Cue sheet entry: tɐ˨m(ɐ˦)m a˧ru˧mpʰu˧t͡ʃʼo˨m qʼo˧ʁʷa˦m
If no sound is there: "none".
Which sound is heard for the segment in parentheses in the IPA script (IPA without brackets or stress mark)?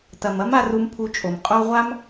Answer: ɐ˦